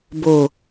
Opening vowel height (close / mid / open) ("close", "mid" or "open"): close